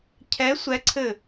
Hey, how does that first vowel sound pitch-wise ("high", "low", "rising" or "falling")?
rising